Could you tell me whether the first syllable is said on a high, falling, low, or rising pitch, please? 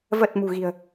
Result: low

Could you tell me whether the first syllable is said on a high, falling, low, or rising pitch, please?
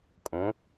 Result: rising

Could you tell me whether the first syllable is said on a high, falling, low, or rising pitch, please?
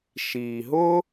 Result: low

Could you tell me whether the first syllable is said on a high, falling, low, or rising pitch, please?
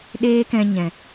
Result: high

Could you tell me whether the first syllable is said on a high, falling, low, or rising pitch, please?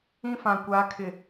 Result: high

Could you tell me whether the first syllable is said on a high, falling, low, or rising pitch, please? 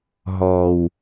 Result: low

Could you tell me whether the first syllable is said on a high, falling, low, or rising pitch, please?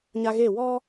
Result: high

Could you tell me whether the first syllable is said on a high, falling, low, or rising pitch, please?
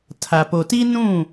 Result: low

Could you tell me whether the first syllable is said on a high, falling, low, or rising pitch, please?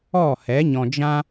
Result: falling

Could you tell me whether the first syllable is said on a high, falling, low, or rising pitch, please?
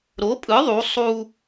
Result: rising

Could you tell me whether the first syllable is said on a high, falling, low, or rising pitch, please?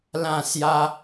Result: falling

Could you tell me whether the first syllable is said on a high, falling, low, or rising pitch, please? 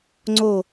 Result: falling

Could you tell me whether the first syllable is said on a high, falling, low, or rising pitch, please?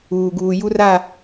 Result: low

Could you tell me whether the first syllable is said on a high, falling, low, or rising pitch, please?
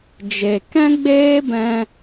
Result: low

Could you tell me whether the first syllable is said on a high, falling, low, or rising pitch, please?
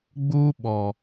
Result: high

